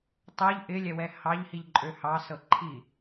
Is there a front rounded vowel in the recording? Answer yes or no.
yes